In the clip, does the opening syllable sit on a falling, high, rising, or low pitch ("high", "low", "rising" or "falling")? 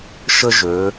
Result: high